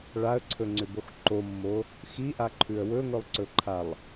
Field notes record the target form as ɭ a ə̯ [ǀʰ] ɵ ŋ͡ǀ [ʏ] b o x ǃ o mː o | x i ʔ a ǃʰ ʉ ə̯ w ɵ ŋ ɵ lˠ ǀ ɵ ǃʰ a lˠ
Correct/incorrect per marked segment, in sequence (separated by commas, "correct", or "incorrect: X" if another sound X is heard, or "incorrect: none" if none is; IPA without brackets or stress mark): correct, correct